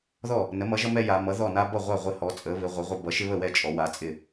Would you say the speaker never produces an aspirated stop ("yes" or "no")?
yes